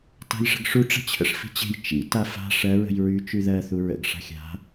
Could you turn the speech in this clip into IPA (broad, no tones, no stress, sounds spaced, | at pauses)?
t a̤ j ʂ ə̤ ɡ ʂ u ʈ͡ʂ ə̤ t͡ɕʰ ə̰ ʂ f i̤ t͡ɕ e̤ j t͡ʃ ḭ t a f a̤ ʂ ɜ ɹ ə̤ j ɹ y t͡ʃ y ð ɜ θ u ɹ ə̰ ɡ ʂ a̤ xʲ a̤